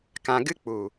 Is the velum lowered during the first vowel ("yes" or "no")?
yes